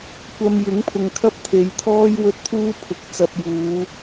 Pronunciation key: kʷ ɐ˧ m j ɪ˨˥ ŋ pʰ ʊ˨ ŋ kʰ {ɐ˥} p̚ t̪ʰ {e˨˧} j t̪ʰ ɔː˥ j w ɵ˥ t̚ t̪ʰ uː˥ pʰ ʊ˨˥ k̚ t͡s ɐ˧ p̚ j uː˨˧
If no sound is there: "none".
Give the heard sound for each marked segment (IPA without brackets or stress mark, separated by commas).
ɐ˥, e˨˧